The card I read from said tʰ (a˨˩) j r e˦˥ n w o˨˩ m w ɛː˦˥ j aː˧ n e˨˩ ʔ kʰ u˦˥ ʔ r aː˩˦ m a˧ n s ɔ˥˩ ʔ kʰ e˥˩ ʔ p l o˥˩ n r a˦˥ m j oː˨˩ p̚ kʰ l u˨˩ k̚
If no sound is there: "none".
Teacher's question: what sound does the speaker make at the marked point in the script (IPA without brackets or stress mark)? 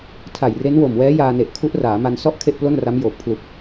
a˨˩